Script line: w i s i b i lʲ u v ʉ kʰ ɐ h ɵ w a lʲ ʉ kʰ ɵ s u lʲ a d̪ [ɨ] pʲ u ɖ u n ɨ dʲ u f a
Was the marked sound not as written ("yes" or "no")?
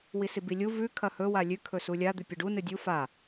yes